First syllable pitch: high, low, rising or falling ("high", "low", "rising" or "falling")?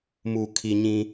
low